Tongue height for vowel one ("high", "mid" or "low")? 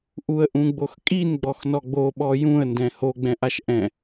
high